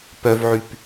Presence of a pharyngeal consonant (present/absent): present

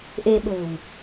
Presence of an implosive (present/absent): present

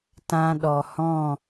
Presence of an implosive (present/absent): present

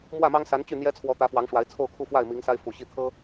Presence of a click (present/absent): absent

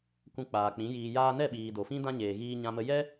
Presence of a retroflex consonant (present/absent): absent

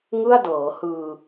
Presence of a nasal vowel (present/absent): absent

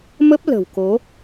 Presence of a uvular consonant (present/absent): absent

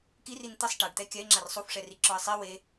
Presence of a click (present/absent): present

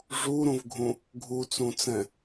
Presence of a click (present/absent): absent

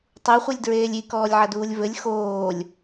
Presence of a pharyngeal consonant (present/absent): present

